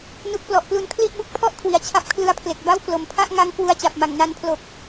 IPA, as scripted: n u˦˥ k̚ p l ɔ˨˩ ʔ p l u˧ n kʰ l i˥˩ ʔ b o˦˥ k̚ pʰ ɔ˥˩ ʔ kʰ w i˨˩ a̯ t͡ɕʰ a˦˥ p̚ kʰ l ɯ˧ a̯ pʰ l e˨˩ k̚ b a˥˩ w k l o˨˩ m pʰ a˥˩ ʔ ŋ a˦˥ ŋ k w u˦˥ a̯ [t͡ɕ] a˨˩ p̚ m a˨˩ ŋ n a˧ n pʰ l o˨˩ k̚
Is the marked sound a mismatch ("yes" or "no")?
no